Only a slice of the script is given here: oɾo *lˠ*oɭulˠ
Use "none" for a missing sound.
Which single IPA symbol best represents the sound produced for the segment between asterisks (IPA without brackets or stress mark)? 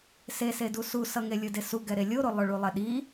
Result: lˠ